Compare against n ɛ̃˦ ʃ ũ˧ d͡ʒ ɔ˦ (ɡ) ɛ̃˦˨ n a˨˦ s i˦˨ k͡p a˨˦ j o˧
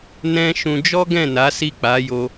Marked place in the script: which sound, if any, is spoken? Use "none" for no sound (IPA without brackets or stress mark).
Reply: ɡ